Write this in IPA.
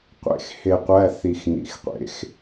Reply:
qʷ ḛ˧˩ x h e˧˩ qʷ æ˧˥˧ θ i˧˩ x n̪ ḭ˨˦ x qʷ ḛ˨˦ x

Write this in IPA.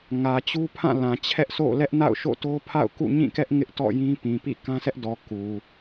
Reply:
ŋ ä˨ t͡ɕ u˦ pʰ ã˦˨ l ã˨ t͡ɕʰ ɛ˦ ʔ s o̰˦˨ l ɛ˦ ʔ n a̰˦˨ ʊ̯ ʃ o̰˦˨ t o˦ pʰ a̰˦˨ ʊ̯ k ṵ˦˨ ɲ ĩ˦˨ k ɛ˦ ʔ ŋ ɪ˦ ʔ t ɔ̰˦˨ j ĩ˦ p ĩ˨ p ḭ˦˨ k ã˦ sʰ ɛ˦ ʔ d ɔ˨ k u˨

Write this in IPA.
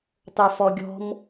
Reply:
tˤ ə˞ f ɔ ɡʲ ɔ̤ m

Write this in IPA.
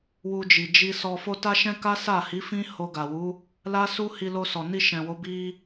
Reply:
w u˧ d͡ʒ i˨ d͡ʒ i˧ s ɔ˧ f o˦ t a˦ ʃ ɛ̃˦ k a˦ s a˦˨ h i˨˦ f ĩ˦ h o˧ ɡ a˨ w u˨˦ | l a˦ s u˦ h i˧ l o˧ s ɔ˨ n i˧ ʃ ɛ̃˨ w o˨˦ b i˧

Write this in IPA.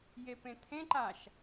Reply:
j e p ẽ t̪ʰ ẽ ǃ a ʃ

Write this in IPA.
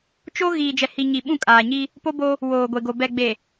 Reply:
t͡ʃ o˦ ɣ iː˨ d͡ʒ ɛ˨ h i˨ ɲ i˨ ɓ ũ˦˨ kʼ aː˨ ɲ i˦ | p o˦ b o˦ | w oː˨ ɡʷ e˨ ɡ o˨ b ɛ˨ ɡ͡b e˨

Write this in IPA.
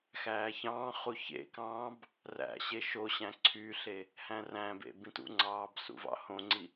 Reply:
x æː ç ɑ̃ː χ u ç ḛ k ɑ̃ː b | r æ̰ ɕ e ʃ o ɕ æ̃ ǀʰ y ɬ e | h æ̃ r æ̃ b ḛ b ĩ t ṵ ŋ͡ǀ ɑː b s ṵ v ɑ̰ h õ ŋ͡ǀ i

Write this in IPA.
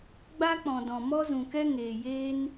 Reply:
ɡ͡b a˦ k͡p ɔ̃˨ d ɔ̃˨ m ɔ˦ z ũ˨ k ɛ˦ ŋ eː˨ j eː˦ n

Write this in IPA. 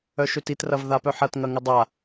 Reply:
œ ʃ ø t i t r ɐ v ð a p œ ħ ɐ t ŋ ɐ ŋ ɪ dˤ a

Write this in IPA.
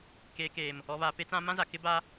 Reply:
k eː˨ k eː˨ m | ɔ˨ β a˨ p e˦ t͡s ã˦ m ã˦ z a˨ k ɪ˦ b a˦

